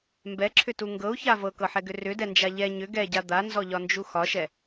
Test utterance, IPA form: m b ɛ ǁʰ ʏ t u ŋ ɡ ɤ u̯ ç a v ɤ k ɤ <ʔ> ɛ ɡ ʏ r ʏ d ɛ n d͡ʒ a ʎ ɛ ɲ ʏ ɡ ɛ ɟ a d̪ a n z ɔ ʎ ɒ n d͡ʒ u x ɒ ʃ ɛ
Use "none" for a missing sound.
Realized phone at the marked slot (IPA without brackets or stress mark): ħ